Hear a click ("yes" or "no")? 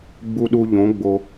no